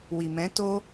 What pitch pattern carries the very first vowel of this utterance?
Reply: low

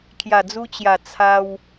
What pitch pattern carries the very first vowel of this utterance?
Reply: low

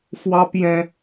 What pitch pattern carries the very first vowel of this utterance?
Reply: high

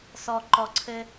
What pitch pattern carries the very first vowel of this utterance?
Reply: low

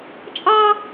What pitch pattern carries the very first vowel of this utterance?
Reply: high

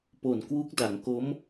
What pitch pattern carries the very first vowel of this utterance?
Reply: low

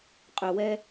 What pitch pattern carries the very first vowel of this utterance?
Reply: low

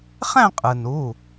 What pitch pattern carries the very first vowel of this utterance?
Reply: falling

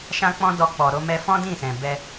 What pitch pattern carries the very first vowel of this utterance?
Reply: high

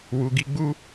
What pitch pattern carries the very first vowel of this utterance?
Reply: low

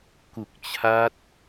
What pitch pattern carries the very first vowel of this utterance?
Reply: low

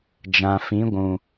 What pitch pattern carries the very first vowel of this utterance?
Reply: low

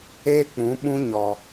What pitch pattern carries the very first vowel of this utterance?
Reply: high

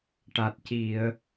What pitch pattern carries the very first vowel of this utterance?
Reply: low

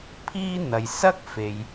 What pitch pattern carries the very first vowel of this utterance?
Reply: high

